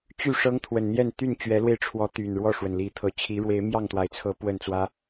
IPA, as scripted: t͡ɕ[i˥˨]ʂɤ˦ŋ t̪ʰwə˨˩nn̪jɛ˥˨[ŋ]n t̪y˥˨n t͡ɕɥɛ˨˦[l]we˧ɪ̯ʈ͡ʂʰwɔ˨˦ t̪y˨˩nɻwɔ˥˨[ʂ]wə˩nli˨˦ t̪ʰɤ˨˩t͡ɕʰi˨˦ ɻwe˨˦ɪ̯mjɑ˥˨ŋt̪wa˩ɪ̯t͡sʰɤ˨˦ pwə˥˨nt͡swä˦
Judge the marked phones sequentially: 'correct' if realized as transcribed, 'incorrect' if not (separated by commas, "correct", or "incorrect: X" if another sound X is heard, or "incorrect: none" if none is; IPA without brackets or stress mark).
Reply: incorrect: y˥˨, incorrect: none, correct, correct